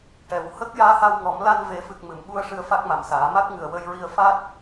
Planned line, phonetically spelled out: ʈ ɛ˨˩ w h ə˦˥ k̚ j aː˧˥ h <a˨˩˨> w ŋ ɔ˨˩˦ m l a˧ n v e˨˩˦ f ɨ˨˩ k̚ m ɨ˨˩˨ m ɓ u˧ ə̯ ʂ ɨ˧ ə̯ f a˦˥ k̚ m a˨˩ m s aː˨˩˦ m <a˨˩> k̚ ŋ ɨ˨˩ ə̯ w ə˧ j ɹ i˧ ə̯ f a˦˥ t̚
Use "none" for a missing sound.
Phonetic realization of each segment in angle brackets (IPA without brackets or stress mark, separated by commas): a˧, a˦˥